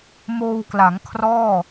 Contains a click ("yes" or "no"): no